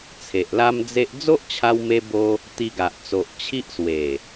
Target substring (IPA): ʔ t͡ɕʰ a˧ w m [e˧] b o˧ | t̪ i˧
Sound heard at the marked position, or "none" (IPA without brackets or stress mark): e˧